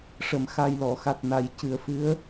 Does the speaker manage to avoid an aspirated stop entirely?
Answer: yes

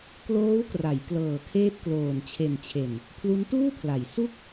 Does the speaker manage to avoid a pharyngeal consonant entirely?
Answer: yes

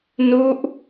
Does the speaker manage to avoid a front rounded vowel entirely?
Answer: yes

